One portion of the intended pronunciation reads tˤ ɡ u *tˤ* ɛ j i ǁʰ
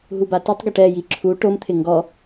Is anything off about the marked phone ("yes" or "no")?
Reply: yes